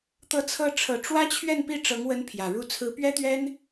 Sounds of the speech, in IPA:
t̪ ɤ˧˥ t͡sʰ ɤ˧˥ ʈ͡ʂʰ ɤ˨˩ ʈ͡ʂ w ä˥ t͡ɕʰ ɥ ɛ˥˧ n p i˥˩ ʈ͡ʂ ɤ˧˥ ŋ w ə˧˥ n pʰ j ä˨˩ ɻ u˥˩ t͡sʰ ɹ̩˧˥ p ɥ ɛ˥ t̪ ɥ ɛ˥ n

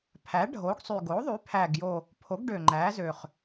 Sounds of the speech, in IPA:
pʰ æ˩˥ ɖʱ o˩˥ ɡ sˤ y˨˩ ɡ o˩˥ ðˤ y˩˥ pʰ æ˨˩ ɡ j o˨˩ | pʰ o˩˥ ɡ ɖ ø˨˩ ŋ͡ǃ æ˩˥ z ø˨˩ χ

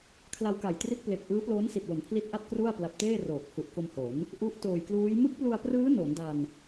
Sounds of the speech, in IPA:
kʰ l a˧ w k a˨˩ j t r i˦˥ t̚ p l e˨˩ k̚ ʔ ɯː˦˥ p l oː˦˥ n s i˨˩ t̚ w o˩˦ n pʰ l i˦˥ t̚ ʔ a˥˩ t̚ k r u˥˩ a̯ p l a˨˩ p̚ t eː˥˩ r oː˨˩ k̚ h u˨˩ ʔ k o˧ m h o˩˦ n | ʔ u˦˥ ʔ t oː˨˩ j k l uː˦˥ j m ɯ˦˥ k̚ p l u˧ a̯ p r ɯː˦˥ n o˩˦ n d a˧ n

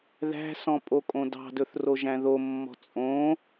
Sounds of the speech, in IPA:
ð æ̤ s ɔ̃ pʼ o kʼ õ d ɑ̤ d ɵ θ r o ʒ æ̃ ð o mː ɔ̤ t͡sʼ õ

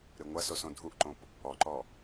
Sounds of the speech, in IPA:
ɾ ɨ ŋʷ ɐ s o s õ dʱ u ʔ ǃ õ p | ɔ ǃ ɔ

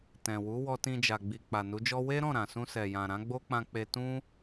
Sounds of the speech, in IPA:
t ɛ̃˨ w u˨˦ w ɔ˧ t ĩ˧ d͡ʒ a˨ ɡ͡b i˨ k͡p a˨ n u˨˦ d͡ʒ ɔ˦ w e˦ ɾ ɔ̃˦˨ ɾ ã˨ s ũ˧ s ɛ˨ j ã˨ ɾ ã˨˦ ɡ͡b o˦ k͡p ã˧ k͡p e˧ t ũ˦

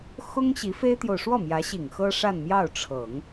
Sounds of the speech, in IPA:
x ʊ˥ ŋ ɕ i˧˥ f e˥ ɪ̯ t̪ j o˨ ʊ̯ ʂ w ɔ˥˩ m j ä˧˥ ɕ i˨˩ ŋ x ɤ˥ ʂ a˥˧ n m j ɑ˥˩ ʊ̯ ʈ͡ʂʰ ɤ˨˩˦ ŋ

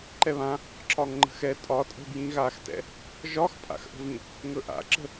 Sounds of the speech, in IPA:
ǃ ɛ β ã | ǁ ɒ ŋ ŋ͡ǃ ə̤ x ɛ tʼ ɒ tʼ ə̤ b j ĩ ɣ a x t ɛ̰ | ʒ ɒ x pʼ a̰ x ʔ ə̤ v ĩ | ŋ ɵ ʔ a̰ ǁ ə̤

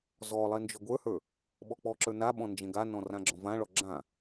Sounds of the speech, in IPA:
z ɔ lˠ ɛ n d͡ʒ ɔ ɡʷ ə˞ h ə˞ | ɓ ɔ k͡p ɔ ǁ ə˞ n a ɓ ɔ̃ n d͡ʒ ɛ̃ ɡ a n ɔ̃ r ã ɡ͡ǁ ɔ̃ v ã ɭ ɔ ɡ͡ǁ ã

